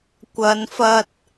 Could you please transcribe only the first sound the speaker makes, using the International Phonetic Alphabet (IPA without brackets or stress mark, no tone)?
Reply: kʷ